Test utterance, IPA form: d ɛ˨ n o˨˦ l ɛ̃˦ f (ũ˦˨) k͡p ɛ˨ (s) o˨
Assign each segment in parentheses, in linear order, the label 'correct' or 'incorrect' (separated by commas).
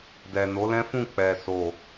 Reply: correct, correct